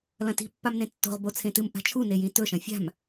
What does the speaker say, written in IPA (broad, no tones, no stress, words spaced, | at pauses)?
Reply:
lɐ̃ti̤ pːamnẽtːo̤ʁ bot͡sʰẽtɨm ʔa̤t͡ʃʰu nejĩtɵ ʃɐ̃fʲa̤m